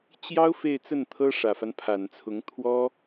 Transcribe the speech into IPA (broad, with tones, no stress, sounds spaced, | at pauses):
t͡ɕ j ɑ˥ ʊ̯ f e˥˧ ɪ̯ t͡s ə˥˩ n t̪ʰ ɤ˥ ʂ ä˨˩ f a˦ n pʰ a˨˩ n t͡sʰ ʊ˧˥ ŋ t̪ʰ w ɔ˥